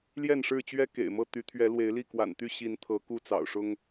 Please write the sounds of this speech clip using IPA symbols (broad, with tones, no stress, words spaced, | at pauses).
ljɛ˥˨nʂɻ̩˥˨t͡ɕɥɛ˦ kḛ˨˩ɪ̯mɤ˥˨ t̪y˨˦t̪ʰɥɛ˨˦ lwe˨˦ɪ̯li˥˨kwa̰˨˩n t̪y˥˨ ɕi˨˦n t̪ʰɤ˨˦ku˥˨t͡sɑ̰˨˩ʊ̯ʂʊ˦ŋ